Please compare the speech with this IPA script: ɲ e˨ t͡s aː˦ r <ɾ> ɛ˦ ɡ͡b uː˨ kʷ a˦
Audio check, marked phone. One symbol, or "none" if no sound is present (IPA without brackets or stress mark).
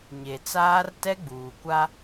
t